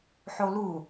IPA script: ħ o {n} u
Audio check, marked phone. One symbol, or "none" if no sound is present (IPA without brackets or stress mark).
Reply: l